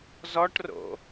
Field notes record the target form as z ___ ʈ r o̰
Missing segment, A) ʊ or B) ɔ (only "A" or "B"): B